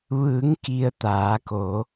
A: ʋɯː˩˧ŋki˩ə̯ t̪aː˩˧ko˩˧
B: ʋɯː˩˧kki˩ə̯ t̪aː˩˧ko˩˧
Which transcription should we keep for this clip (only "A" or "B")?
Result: A